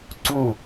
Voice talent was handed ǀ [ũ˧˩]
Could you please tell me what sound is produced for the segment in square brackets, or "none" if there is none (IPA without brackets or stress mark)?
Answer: ũ˧˩